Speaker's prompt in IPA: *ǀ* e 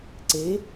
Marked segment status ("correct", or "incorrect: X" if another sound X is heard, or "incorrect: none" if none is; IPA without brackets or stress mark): correct